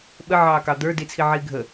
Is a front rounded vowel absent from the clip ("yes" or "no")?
yes